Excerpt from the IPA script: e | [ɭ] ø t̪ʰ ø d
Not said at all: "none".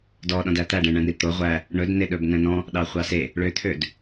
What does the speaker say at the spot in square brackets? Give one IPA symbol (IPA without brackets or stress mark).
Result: ɭ